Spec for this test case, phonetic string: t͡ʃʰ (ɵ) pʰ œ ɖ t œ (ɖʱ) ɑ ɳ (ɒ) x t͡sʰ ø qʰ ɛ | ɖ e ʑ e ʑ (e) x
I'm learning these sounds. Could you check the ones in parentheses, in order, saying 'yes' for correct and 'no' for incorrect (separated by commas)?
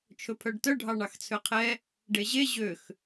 yes, yes, no, no